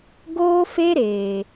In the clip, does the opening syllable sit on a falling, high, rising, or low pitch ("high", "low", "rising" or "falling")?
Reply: high